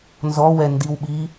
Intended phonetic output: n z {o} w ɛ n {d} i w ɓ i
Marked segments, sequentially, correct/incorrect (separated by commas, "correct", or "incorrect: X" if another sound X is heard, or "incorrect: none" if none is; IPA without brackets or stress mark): incorrect: ɔ, correct